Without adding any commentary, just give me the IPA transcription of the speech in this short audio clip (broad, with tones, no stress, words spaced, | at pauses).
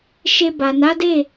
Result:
ʃe˧ba˨ na˨˦de˦˨